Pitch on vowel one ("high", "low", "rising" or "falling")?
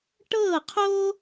falling